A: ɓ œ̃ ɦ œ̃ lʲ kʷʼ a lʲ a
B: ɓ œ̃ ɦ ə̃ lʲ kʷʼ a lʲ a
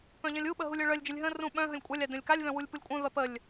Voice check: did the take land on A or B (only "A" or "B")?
B